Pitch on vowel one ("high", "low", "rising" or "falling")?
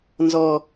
low